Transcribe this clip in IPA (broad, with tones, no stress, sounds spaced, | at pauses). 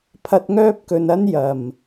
pʰ ɐ˧ t̚ ŋ œː˥ p̚ k ɵ˨ n ɐ˥ n j ɐ˨˩ m